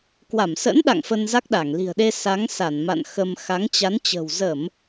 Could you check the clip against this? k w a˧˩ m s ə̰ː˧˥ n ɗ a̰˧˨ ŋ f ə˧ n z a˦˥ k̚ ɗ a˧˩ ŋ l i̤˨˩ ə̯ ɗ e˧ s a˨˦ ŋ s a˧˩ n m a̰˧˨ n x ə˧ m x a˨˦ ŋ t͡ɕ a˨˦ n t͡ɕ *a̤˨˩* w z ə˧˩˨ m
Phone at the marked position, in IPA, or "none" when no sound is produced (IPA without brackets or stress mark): ə̤˨˩